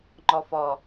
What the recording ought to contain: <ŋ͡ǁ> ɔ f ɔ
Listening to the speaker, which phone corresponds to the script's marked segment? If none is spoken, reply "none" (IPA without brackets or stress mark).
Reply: ŋ͡ǃ